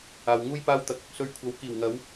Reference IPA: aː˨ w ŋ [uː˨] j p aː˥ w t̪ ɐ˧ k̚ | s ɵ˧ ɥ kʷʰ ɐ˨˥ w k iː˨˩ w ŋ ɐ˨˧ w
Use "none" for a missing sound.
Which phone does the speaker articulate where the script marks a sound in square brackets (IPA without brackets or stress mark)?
uː˥